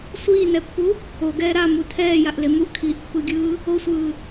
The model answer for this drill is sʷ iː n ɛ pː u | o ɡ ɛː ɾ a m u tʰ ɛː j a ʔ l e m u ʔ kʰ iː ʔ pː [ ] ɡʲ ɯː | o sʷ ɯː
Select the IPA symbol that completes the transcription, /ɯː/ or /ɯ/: ɯ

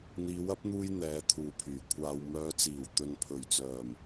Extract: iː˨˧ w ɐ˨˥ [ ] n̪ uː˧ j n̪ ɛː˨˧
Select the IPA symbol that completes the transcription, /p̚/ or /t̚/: p̚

